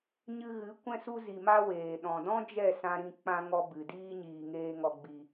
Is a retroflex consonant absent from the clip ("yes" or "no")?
yes